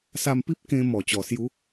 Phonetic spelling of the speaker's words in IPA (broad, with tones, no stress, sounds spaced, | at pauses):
s a˧ m p i˦ p̚ k ẽ˧ m ɔ˨˩ t͡ɕ ɔ˨˩ s j u˨˦